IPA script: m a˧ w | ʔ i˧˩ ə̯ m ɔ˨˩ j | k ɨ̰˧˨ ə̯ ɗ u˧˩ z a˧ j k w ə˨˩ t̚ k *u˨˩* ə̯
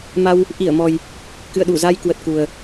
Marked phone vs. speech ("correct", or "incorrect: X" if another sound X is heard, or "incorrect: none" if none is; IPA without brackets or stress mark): correct